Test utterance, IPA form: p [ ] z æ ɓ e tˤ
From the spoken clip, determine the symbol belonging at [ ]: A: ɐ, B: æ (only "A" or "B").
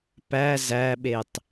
B